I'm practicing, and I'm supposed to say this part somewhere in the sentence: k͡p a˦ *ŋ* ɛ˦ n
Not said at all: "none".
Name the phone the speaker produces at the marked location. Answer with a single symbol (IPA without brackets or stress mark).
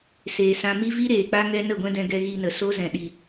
ŋ